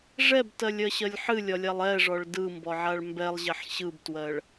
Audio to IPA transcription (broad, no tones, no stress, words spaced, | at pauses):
ʐɛbtɜlʲɜɕɜlʲ ħɨlʲɒlʲalˠ ɛʐɔɭ dɯmbɔʕaɭ mbɛlˠʑɛħ ɕɯbtwɜɭ